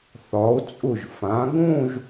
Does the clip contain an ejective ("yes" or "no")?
yes